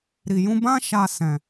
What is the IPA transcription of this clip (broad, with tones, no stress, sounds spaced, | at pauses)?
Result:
ɾ i˨ j ũ˧ b ã˦ ʃ a˧ s ɛ̃˨